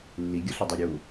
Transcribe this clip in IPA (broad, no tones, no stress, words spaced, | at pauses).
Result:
lːiɡʲʌɬedˤe ɾʲu